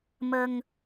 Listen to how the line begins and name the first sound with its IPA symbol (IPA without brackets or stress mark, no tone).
m